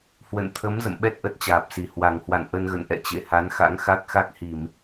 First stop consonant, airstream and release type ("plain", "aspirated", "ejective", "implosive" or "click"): aspirated